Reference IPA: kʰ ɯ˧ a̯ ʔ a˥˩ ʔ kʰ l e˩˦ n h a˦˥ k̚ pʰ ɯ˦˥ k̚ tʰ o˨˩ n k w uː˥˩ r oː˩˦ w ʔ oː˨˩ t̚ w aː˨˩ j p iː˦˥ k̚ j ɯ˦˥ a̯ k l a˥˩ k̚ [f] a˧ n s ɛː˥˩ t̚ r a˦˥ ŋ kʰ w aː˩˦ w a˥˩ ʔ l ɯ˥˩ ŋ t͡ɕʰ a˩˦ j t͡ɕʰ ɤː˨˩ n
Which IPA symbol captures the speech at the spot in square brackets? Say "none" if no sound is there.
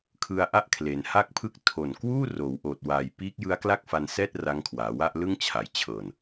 f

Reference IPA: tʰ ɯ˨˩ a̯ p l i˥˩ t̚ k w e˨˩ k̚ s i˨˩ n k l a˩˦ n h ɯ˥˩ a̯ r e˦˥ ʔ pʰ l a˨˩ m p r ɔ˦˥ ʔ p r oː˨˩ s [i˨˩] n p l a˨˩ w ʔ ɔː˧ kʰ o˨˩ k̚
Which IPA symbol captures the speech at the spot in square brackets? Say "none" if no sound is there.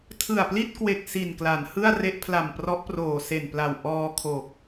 e˨˩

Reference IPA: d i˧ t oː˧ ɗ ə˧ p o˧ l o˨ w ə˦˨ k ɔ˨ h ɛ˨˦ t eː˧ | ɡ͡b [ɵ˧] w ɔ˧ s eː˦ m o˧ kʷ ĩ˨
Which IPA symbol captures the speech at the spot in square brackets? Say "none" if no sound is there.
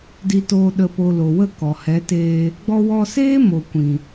ɔ˧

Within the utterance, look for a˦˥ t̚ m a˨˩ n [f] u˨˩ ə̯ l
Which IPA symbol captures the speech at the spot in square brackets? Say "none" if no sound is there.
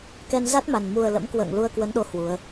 m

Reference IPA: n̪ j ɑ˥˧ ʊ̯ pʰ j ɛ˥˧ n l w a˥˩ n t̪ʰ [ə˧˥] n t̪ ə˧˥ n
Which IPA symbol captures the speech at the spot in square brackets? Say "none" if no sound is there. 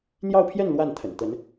ə̰˨˩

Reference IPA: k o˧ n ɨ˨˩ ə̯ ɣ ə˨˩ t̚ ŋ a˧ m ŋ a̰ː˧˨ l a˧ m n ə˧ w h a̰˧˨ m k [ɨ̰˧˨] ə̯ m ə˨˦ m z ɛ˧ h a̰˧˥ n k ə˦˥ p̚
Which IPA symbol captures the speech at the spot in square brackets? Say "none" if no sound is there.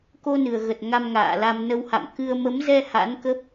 ɨ˧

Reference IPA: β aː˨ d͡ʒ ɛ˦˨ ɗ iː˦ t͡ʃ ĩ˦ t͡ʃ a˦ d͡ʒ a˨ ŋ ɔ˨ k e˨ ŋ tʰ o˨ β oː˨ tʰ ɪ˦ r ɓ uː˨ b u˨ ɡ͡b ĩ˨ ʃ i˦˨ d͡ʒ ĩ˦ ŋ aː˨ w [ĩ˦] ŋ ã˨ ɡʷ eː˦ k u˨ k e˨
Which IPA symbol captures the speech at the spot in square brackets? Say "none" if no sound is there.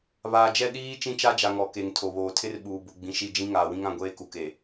ĩ˦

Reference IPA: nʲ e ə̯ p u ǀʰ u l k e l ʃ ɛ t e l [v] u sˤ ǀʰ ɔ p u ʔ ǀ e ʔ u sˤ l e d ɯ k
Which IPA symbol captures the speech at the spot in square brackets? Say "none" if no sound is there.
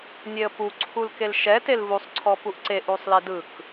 v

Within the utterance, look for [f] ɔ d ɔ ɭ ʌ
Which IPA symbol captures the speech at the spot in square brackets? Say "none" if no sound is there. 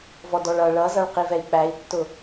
v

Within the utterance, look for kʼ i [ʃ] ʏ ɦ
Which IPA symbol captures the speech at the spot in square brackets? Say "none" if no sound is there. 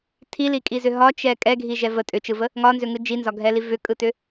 z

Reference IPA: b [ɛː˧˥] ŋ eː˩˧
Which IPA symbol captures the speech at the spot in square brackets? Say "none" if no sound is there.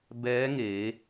ɛː˧˥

